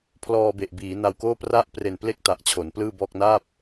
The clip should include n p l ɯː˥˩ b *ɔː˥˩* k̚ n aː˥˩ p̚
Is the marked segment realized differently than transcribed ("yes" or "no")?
no